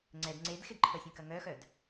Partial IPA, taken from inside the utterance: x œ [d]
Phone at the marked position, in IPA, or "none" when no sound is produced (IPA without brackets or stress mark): d